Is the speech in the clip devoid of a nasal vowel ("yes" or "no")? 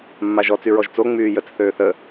yes